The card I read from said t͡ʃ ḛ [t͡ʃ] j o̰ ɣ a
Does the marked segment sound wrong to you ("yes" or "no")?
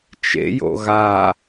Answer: yes